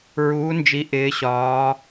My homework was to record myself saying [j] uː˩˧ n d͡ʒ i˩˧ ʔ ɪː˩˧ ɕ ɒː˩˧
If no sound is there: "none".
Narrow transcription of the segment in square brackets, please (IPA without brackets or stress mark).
ɹ